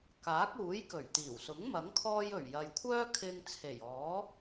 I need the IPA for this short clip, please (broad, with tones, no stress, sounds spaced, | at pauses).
k aː˨˥ k̚ uː˨˥ j k ɵ˨˩ ɥ t̪ iː˨˩ w s ʊ˨˥ ŋ m ɐ˨˥ ŋ kʰ ɔː˧ j ɵ˨˩ ɥ j ɐ˨ j kʷʰ œː˥ kʰ ɪ˧ ŋ t͡sʰ e˨˩ j ɔː˨˥